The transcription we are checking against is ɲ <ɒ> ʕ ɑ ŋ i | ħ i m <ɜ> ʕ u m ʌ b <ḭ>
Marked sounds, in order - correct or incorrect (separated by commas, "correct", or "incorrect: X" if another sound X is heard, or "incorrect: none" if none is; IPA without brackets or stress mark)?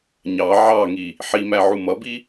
incorrect: ɑ, incorrect: æ, incorrect: i